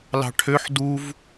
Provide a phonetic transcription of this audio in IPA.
lɑ̤ʈʰøħ duv

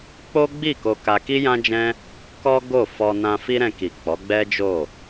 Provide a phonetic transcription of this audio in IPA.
k͡po˦ɡ͡bi˦˨ ko˧ka˧ ki˦jã˦d͡ʒɛ̃˦ | kɔ˦ ɡo˦˨fɔ˧ nã˧fi˦ɾɛ̃˧ ki˨k͡pɔ˨˦ɡ͡bɛ˦ d͡ʒo˦˨

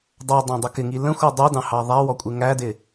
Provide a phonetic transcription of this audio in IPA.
dˤɑdˤɑ̃dˤʊ kɪŋi lə̃xʷɪ dˤudɑ̃hɑ ðˤæwɔkʷʼɪ ŋædɪ

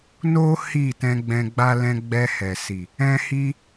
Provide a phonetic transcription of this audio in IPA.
no˦ hi˦˨tɛ̃˧ɡ͡bɛ̃˧ɡ͡ba˦ lɛ̃˧ɡ͡bɛ˧ hɛ˨si˨ | ɛ̃˦hi˦

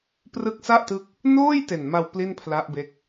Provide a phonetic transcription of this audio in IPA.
prɯ˦˥k̚sa˥˩ʔtɯ˦˥k̚ | noː˥˩j te˨˩nma˧w pli˥˩npʰla˦˥ʔbe˦˥k̚

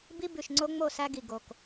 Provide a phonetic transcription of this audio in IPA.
bi˦ bʉ˨ʃŋ͡ǀo˦ŋ͡mo˦˨ sæ˦ɡi˨ ɡo˨k

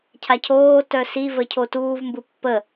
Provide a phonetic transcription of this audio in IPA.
cʰacʰoːtœ sivə cʰotuːvmbɯ pːə

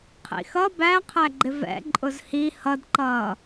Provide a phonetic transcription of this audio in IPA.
qʰḭxʌ bæqʰæɡ͡ǃɪ vɛ̰ ǃʼʊzhi hʌdǃʌː

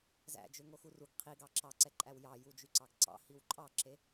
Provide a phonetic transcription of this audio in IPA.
zæ̰d͡ʒøŋoxu ruɡ qʰiɡɑ ǁɑǀɛǃʼæw jɑjud͡ʒyǀɑɡ ǀɑ̰hiw ǃʼɑǁe

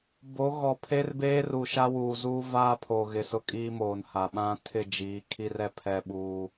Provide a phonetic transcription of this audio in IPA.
bo˨˦ɣɔ˨pʰe˦rbeː˦r u˨ ʃa˦wuː˨zuː˦ vaː˦pʰoː˨ ɣɪ˨sʊ˦ kʼiː˦moː˨nha˨ ɓã˦ tʰɪ˦˨d͡ʒiː˨˦kʰi˦rɛ˦ pʰɛ˦ɓuː˦

